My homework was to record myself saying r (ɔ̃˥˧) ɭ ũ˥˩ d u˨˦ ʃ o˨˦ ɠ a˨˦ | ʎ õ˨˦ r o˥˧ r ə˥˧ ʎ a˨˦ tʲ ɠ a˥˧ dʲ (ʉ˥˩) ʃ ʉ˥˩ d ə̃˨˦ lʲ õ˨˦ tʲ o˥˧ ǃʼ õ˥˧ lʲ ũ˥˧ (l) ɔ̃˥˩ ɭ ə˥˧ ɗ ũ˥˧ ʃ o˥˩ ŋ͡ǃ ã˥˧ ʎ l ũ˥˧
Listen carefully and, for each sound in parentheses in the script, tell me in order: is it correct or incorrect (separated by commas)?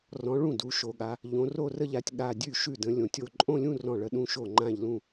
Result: incorrect, correct, incorrect